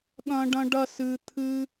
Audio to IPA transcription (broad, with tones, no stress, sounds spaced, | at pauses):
ɠ ɐ̃˦ ɖ ɐ̃˦ ɖ ɐ˦ s ɨ˧ t̪ʰ ɨ˦